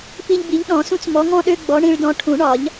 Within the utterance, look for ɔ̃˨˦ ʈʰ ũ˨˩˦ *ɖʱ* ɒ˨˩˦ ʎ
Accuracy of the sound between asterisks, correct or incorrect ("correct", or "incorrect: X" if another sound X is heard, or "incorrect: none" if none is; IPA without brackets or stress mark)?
incorrect: ɳ